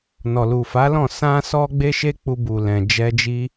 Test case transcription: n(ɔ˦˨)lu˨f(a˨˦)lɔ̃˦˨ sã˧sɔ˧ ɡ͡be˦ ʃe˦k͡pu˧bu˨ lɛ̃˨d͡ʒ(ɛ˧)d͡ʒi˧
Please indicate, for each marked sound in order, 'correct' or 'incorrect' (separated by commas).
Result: incorrect, correct, correct